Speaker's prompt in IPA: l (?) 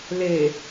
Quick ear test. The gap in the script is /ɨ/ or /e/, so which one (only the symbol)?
e